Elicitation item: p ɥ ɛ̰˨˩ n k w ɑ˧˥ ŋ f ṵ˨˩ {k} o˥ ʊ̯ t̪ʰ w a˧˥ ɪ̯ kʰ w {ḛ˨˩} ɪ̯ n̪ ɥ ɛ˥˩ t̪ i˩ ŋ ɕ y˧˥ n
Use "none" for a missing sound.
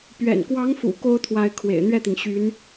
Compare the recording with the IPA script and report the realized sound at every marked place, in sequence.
k, ḛ˨˩

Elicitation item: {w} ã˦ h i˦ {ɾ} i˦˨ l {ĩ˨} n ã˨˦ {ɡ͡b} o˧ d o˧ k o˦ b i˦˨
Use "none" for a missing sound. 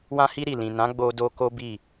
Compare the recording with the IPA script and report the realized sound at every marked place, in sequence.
w, ɾ, ĩ˨, ɡ͡b

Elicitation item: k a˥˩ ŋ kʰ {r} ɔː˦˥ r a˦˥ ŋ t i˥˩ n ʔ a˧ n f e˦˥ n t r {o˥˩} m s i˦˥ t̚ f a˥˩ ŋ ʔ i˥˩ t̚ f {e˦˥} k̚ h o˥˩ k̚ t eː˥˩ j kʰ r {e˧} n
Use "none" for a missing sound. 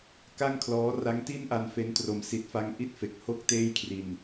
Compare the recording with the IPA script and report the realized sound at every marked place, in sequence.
l, o˧, e˨˩, i˧

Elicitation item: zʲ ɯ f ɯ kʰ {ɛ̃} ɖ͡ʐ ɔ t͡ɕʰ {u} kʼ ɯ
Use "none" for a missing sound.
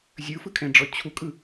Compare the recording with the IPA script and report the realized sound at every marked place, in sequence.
ɛ̃, u

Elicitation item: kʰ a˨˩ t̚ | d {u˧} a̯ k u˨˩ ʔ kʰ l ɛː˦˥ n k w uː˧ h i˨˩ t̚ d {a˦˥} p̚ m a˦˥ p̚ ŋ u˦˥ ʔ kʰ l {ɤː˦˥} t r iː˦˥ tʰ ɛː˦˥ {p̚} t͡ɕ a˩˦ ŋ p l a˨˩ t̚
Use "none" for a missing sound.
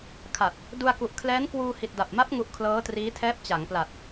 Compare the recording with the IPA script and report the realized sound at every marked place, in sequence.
u˧, a˨˩, ɤː˦˥, p̚

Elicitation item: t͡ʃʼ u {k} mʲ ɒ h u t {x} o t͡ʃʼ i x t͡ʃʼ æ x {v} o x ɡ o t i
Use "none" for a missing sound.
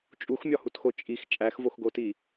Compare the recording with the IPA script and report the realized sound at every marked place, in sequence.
x, x, v

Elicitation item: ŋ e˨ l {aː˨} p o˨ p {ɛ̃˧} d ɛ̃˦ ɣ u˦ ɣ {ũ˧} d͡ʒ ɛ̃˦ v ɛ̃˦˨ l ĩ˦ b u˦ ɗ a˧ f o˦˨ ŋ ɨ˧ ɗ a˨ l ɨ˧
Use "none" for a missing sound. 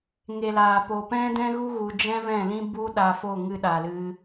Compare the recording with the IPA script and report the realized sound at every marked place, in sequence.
aː˨, ɛ̃˦, u˧

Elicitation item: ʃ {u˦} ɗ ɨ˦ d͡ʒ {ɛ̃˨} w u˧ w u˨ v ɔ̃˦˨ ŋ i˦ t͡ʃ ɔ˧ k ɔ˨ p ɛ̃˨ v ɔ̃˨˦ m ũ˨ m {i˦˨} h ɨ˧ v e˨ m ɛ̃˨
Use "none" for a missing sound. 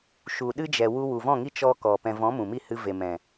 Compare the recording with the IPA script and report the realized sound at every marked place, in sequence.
u˨, ɛ˨, i˦˨

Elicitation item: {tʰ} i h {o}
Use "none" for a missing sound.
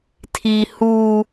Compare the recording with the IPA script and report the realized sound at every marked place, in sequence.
tʰ, u

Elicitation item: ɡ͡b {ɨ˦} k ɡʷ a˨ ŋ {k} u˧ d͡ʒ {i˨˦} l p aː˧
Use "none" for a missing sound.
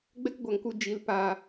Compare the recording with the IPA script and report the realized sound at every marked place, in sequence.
ɛ˦, k, i˨˦

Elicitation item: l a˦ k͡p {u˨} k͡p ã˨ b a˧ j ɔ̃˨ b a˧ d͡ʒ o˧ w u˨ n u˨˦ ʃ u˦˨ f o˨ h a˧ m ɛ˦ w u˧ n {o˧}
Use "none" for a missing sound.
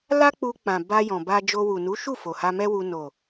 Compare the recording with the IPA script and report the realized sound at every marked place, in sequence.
u˧, o˨

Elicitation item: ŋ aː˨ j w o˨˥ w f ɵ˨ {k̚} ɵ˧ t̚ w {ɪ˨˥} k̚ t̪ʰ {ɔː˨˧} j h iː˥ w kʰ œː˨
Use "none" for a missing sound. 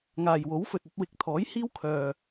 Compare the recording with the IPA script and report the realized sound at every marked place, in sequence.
t̚, ɪ˨˥, ɔː˨˥

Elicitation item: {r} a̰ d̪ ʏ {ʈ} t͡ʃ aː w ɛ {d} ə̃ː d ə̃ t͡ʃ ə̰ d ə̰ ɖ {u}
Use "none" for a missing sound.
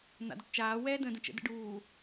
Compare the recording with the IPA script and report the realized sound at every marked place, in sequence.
n̪, ʈ, d, uː

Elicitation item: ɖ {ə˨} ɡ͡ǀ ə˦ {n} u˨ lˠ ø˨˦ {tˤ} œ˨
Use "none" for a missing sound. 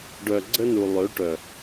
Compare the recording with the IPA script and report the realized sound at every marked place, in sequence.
œ˨, n, ʈ

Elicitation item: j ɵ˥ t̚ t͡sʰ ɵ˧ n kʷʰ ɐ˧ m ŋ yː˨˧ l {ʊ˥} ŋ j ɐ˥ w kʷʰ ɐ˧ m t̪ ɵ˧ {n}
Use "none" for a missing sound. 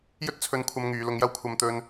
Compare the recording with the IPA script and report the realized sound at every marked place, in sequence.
ʊ˧, n

